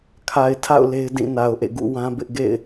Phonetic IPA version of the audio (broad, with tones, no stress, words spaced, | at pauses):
kʰa˨ɪ̯tʰa̰˦˨ʊ̯ le˦ɪ̯dĩ˦˨na˨ʊ̯ʔḛ˦˨ ɡṵ˦˨wã˦bɪ˦ʔɡḛ˦˨ɪ̯